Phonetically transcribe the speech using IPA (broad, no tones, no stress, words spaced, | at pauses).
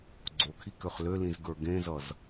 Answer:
ɡ͡ǀokʰikøχ lølĩzɡə˞ ɡẽzʌz